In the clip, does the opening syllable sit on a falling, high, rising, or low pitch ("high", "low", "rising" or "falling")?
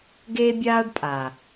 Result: high